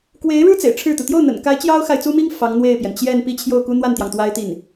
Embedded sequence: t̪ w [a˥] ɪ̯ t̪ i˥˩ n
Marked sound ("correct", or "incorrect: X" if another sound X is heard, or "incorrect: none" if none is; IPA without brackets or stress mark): correct